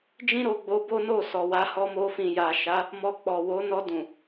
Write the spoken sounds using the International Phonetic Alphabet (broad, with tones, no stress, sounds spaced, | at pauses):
d͡ʒ ĩ˦ ɾ o˧ ɡ͡b o˧ b o˦ n o˦˨ s ɔ˨ w a˧ h ɔ˧ m o˧ f ĩ˨ j a˨ ʃ a˨˦ | m ɔ˧ k͡p ɔ˨ w o˨˦ n ɔ˧ d ũ˨